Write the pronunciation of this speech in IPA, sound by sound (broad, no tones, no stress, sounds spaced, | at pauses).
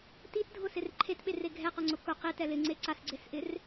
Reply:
t i t dʱ ʊ s ɪ r ǃʰ e t ɓ e r e ɡʱ ɛ q o ŋ͡ǀ ʊ k ʊ q i t ɛ l ɪ ŋ͡ǀ e ǀ a s ɡ͡ǀ e s ʔ ɪ r